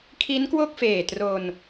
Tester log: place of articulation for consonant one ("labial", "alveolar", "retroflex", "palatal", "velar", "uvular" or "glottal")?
velar